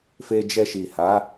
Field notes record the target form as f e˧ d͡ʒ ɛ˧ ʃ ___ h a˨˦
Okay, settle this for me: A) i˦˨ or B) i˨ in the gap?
B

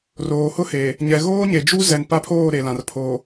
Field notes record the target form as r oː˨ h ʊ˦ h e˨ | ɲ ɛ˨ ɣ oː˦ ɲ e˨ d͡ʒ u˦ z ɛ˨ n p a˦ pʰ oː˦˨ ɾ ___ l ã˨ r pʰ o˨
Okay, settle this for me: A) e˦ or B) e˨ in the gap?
B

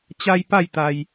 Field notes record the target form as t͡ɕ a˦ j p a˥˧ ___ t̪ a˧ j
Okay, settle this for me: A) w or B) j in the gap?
B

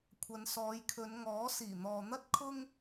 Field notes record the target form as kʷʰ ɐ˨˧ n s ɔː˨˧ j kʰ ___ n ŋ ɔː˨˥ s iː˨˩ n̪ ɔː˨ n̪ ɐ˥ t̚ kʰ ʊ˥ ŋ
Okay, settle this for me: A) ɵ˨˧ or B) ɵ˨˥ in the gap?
A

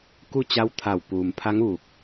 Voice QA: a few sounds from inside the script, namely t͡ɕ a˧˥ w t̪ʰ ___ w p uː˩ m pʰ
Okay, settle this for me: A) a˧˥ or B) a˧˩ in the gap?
B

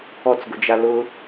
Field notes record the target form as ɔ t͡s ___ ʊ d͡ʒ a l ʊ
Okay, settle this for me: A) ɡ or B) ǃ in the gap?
A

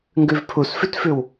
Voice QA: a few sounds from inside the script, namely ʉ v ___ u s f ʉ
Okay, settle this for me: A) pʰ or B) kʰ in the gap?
A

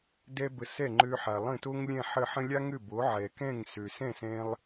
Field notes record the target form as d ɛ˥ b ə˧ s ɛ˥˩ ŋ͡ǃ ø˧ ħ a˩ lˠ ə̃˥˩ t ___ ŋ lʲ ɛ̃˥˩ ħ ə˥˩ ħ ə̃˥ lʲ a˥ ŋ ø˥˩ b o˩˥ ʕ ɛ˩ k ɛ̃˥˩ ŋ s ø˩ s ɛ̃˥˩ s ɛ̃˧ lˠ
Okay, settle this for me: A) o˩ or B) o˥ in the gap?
B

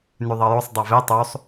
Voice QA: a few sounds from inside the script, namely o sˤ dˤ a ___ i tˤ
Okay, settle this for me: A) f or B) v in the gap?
B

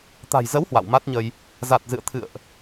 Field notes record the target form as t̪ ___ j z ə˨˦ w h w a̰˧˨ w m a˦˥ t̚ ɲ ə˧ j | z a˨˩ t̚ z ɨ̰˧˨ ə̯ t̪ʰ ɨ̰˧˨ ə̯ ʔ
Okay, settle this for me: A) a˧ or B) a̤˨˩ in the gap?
B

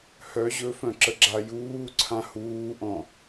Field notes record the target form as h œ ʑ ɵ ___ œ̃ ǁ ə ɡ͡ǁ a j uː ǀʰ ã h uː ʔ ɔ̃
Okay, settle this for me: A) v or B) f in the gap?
B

